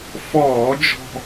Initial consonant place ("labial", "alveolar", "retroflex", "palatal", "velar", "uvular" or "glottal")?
labial